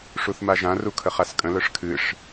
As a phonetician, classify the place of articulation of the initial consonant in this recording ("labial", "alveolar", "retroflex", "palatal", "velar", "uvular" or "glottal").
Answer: retroflex